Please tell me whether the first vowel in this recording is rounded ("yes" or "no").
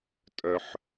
yes